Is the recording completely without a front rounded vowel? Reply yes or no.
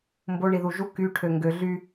no